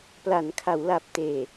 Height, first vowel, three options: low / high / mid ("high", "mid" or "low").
low